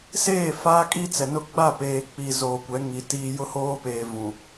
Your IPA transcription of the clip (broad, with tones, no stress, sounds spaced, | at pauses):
s eː˦˨ f aː˦ kʼ i˦ t͡s ɛ˨ n ʊ˦ ɡ͡b a˦˨ p eː˨ k͡p i˨ z oː˨ kʷ ɛ˨˦ ŋ i˨ t iː˦ j ʊ˦ h oː˦ p eː˨ v ũ˨